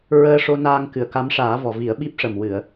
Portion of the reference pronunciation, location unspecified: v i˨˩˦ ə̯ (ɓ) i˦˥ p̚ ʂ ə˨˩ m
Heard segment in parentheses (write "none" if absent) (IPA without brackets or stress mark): ɓ